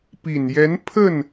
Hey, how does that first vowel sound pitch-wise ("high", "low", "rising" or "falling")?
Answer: low